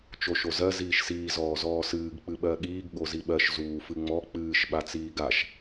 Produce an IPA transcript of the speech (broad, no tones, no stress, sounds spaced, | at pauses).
t͡ʃ o ʃ o z ɜ z iː ʃ s iː z ɔː z ɔː s ɨː ɡ k͡p ɨ ɓ ɜ ɠ iː ɡ ɠ o z i ɓ ɜ ʃ z uː f ɨ ŋ͡m ɔ k͡p ɨː ʃ ɓ a t͡s iː ɡ a ʃ